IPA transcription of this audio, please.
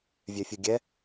vʲœfʲuɡʲɛ

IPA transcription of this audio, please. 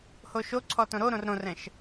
hoʃo ǀʰɔtõɾoɾõr ɾõrɛ̃ʃ

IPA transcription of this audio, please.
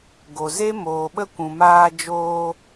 ɡo˨ze˦ moː˨ɓə˧ kʷũ˨maː˧d͡ʒoː˧

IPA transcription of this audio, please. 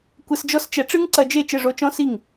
kʷɘ˧sd͡ʒɔ˥st͡ʃɛ˩˥ ʈ͡ʂɨ˥ŋǀɐ˧d͡ʒe˥˩ t͡ʃɘ˥˩ʐo˧˥t͡ʃɔ̃˧˥˧ si˥˩ŋ

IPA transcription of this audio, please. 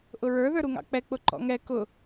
ʔʊɹə˞ ðə˞ɾuŋɑ̰k͡pɛ k͡pʊǃɔ̰ŋɛ kʊ

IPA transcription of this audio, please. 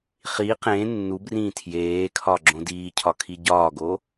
χi qẽ nːubrĩː tʰjeːkʰɒ ɡ͡ǁõdiːcʰɒ kʰiɟɒːɡo

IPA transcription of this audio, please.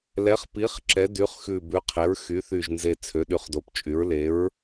lɛ˨˥χpi˨˥χ ǁɛ˨˥dy˨˥χxʉ˧˩ bʉ˨˥qʰe˨˥ɹxy˨˥ θy˧˩ʒnze˧˩ t͡sʰø˨˥ɗy˨˥χdo˨˥pt͡ʃʼy˨˥ɹ le˨˥ɹ

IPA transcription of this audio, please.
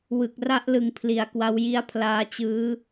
wɯ˨˩k̚ra˦˥ʔlɯ˨˩ŋ pʰli˨˩a̯kwa˧wji˦˥a̯ pʰlaː˦˥t͡ɕɯː˦˥

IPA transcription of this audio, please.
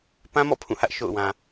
pã˦mɔ̰˦˨ pʰũ˦˨hä˦ʔ ʃo̰˦˨ʊ̯wã˨

